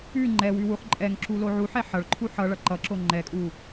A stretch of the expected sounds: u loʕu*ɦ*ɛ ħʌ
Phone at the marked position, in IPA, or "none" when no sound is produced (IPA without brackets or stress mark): ħ